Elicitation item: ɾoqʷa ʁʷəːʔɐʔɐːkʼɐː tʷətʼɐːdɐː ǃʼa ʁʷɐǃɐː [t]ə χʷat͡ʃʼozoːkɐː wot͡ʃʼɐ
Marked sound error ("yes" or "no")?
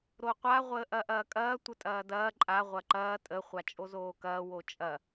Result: yes